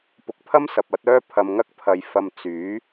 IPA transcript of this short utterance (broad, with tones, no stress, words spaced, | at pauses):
pʊ˨k̚pʰɐ˥msɐ˨p̚ ɐ˨˥t̚œː˥ pʰɐ˧mŋɐ˥k̚ pʰɐ˧jfɐ˧m t͡syː˨˥